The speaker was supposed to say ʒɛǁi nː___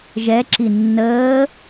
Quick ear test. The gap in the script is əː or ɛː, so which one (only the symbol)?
əː